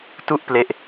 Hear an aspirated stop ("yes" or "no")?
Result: no